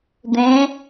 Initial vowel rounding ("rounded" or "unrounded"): unrounded